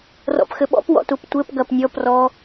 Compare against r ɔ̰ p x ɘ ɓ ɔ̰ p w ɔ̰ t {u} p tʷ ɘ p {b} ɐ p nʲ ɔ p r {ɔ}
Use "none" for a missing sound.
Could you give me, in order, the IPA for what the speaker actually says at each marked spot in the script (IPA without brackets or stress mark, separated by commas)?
u, ɡ, ɔ